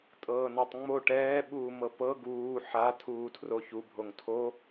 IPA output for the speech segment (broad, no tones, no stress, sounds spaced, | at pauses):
tʼ ɤː n a tˤ ŋ͡m o ʈ ɛː ɓ uː m ɤ p ɤ ɡ uː ħ a tʰ uː tʰ r o ç u bʱ o ŋ tʰ o